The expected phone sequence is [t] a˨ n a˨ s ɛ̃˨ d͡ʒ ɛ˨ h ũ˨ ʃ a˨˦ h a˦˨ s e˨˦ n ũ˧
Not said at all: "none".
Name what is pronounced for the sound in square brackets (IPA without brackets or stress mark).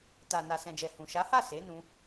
t